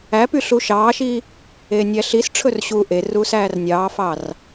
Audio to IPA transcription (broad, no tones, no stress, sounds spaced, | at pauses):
æ p y ɬ u ʃ ɑː ʃ i | eː nʲ æ ɬ i s ʈ͡ʂʰ ɵ r ɕ uː ʔ e r uː s æː r nʲ ɑː f ɑ r